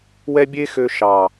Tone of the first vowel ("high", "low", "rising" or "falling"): high